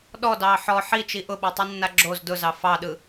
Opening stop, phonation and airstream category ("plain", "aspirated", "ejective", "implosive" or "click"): implosive